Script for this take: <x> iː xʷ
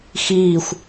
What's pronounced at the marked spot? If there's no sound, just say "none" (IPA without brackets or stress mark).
x